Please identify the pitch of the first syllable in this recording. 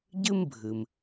high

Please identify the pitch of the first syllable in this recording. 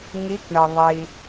rising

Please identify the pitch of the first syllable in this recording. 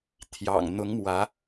low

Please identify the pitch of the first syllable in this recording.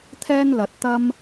high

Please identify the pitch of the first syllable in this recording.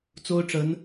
high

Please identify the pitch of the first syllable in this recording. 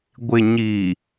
low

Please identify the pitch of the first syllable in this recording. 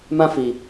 high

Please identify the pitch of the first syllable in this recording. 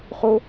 high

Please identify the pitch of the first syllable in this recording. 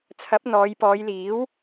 rising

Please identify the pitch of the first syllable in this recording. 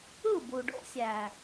falling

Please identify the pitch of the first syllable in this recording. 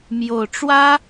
low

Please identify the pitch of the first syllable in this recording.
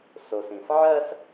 low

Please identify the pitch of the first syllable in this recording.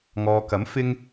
low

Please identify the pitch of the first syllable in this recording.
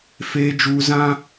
high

